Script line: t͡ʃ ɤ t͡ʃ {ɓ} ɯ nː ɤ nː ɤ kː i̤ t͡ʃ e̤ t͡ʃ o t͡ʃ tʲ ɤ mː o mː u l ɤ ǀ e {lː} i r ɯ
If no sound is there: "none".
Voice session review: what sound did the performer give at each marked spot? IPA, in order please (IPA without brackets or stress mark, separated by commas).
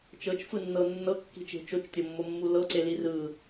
f, l